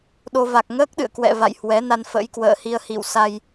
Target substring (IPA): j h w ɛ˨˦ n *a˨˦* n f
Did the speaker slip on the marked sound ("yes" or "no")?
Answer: yes